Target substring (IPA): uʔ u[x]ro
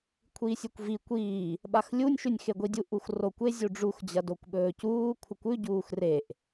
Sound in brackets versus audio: correct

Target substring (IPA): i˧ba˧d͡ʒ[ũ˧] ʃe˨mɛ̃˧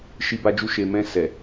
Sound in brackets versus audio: incorrect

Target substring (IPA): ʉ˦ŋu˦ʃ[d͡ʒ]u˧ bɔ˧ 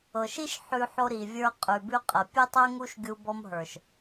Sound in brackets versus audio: incorrect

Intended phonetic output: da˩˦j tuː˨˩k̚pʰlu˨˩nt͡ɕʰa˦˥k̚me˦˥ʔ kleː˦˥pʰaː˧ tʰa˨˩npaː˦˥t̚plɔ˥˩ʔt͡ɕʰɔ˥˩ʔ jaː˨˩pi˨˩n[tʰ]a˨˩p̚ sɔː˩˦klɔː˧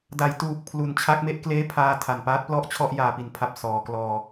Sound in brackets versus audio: incorrect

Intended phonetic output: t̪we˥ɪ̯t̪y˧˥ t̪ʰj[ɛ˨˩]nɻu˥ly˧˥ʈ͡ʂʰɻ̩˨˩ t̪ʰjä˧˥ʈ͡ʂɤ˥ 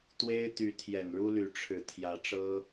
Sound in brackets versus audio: correct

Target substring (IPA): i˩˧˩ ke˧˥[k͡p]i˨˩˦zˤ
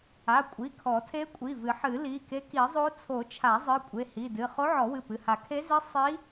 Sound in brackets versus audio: incorrect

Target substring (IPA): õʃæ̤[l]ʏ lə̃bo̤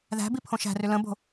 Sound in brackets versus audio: incorrect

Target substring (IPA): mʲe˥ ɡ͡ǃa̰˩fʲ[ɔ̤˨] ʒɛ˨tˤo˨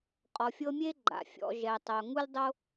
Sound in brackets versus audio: incorrect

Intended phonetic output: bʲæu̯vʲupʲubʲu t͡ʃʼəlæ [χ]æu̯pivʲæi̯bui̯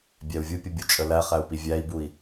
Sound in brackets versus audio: correct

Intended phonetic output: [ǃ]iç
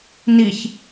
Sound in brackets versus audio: incorrect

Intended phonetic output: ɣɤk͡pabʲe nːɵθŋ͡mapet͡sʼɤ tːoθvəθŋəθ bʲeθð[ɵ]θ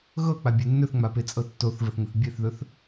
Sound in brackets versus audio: correct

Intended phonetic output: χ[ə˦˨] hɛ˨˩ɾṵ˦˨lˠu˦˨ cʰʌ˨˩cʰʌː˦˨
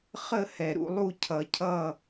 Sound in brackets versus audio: correct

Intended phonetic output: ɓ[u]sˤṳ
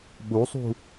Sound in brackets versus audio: correct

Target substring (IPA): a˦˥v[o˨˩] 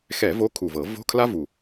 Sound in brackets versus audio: incorrect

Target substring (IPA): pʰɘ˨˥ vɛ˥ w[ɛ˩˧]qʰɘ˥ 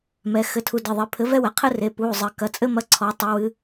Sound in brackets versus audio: correct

